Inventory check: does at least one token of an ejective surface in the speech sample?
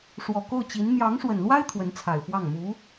no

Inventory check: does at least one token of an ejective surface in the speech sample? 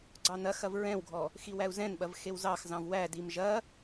no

